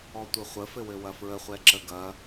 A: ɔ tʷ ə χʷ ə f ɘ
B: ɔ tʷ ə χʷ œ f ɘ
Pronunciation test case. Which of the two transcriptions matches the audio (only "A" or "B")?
A